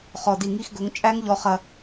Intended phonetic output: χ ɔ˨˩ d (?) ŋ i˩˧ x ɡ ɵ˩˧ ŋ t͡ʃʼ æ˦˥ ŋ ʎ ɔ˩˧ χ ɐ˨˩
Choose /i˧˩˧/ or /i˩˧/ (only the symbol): i˧˩˧